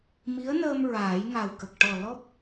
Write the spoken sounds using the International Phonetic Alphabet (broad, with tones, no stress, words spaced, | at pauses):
mi˧˥ə̯nəː˧m ɹaː˨˩˦jŋa˨˩wkə˨˩k̚ ʈɔ˨˩lɔ˦˥p̚